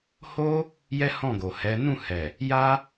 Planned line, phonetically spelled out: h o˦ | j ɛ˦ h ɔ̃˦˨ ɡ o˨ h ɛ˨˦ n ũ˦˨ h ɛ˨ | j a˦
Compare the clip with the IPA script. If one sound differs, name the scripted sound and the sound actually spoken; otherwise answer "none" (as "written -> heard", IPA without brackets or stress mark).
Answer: none